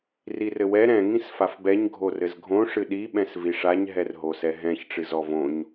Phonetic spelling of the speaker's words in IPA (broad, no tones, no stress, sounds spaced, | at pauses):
r i r ɘ w ɛ ɾ ɛ̃ ŋ ĩ s f a f b ɛ ɲ ɡʱ o r ɘ z ɡʱ õ ʂ ɨ ɗ i ɓ ɛ̃ s v i ʂ a ɲ ɦ ɛ r ɦ o s ɛ ɦ ɛ̃ ç ʈ͡ʂ ɨ z ɔ v õ ɲ